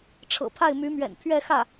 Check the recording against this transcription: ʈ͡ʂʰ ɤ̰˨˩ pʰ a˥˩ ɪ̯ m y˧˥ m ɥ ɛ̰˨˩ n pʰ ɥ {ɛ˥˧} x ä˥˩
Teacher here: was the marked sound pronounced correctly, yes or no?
yes